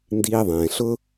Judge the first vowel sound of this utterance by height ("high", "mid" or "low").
high